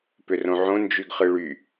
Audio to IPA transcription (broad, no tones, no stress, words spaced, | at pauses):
pʏrõʕõ nd͡ʒyɡχɯɭy